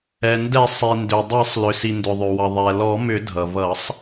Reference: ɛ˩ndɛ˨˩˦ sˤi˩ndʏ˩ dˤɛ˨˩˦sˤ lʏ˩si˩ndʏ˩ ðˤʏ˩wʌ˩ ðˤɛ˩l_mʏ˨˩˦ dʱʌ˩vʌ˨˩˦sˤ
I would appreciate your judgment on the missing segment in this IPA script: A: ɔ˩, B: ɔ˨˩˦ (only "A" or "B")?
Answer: B